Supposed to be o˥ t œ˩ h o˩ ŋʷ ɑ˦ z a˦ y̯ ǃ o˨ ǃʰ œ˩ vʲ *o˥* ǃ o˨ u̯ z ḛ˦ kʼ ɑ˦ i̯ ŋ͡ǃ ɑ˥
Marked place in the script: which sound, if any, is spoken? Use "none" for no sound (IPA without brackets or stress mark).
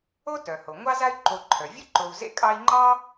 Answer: o˥